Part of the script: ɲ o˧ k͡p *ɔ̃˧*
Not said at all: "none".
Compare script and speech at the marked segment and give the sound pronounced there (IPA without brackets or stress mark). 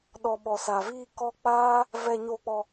ɔ˧